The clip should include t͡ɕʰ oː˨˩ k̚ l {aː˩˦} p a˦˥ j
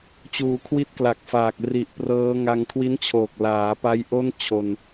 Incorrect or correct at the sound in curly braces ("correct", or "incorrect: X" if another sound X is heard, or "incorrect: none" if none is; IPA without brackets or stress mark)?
correct